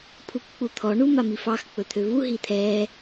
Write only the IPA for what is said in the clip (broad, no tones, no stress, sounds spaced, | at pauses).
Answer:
pʰ u k k͡p u t̪ʰ ɔ ɳ u m a m i f ɑ x k͡p ɵ t̪ʰ ø v u ɦ i t̪ʰ ɛ